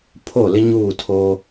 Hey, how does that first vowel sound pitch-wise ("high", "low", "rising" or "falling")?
falling